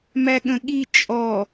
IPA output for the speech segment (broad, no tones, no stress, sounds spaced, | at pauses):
m æ ɠ ə̃ ɠ i t͡ʃʼ ɔ